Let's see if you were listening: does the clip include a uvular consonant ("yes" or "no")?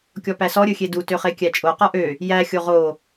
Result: yes